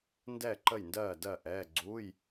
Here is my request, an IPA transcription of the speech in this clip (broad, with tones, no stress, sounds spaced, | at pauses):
n d ɛː˥˩ ǃ ə˥˩ j n d ɜː˥˩ d ɜ˥˩ ʔ ɛː˧˥˧ ɡ͡ǀ uː˧˥˧ j